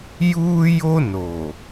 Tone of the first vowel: high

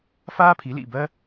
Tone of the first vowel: high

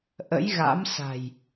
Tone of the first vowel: rising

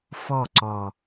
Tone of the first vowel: falling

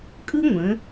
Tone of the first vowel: high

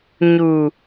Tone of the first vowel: low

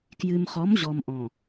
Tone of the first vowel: low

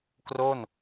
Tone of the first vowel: falling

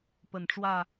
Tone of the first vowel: low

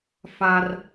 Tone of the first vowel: high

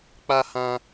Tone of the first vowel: high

